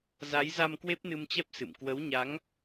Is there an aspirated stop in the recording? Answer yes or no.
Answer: no